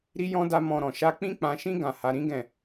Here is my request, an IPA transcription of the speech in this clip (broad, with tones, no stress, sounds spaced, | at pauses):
ɾ i˦ j ɔ̃˦ d a˦ m ɔ̃˧ ɾ ɔ̃˨ ʃ a˧ k͡p ĩ˦ k͡p ã˧ ʃ ĩ˦ ɡ ã˧ h a˧ ɾ ĩ˦ ɡ ɛ̃˦˨